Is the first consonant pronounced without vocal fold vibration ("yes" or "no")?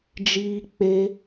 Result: no